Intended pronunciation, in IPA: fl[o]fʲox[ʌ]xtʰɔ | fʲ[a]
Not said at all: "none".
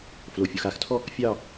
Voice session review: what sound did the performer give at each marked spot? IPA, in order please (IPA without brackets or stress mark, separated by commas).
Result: o, a, ɑ